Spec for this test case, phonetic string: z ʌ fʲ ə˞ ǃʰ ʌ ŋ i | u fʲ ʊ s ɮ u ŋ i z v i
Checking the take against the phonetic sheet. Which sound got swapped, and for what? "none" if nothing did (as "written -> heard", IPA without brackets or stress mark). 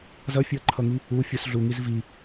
none